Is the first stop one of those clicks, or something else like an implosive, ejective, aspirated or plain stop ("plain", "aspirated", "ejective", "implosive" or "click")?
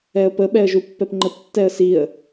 plain